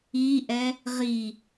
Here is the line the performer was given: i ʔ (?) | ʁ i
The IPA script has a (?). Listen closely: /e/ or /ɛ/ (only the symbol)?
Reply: ɛ